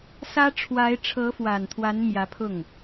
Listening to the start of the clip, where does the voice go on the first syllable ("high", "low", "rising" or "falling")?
high